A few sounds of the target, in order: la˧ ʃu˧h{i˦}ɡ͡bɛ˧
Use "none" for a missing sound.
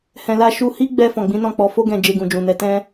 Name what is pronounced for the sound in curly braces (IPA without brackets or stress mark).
i˦